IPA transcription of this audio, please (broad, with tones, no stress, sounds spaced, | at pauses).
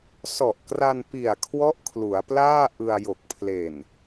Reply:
s ɔ˨˩ ʔ k r a˧ n p i˨˩ a̯ kʰ w ɔ˦˥ ʔ kʰ l u˩˦ a̯ p l aː˥˩ ʔ ɯ˧ a̯ j o˨˩ k̚ pʰ l e˨˩ n